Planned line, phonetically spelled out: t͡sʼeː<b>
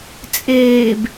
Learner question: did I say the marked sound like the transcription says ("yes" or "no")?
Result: yes